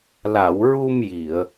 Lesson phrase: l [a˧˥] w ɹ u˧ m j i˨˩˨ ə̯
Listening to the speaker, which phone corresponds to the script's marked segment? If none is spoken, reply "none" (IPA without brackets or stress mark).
a˨˩˨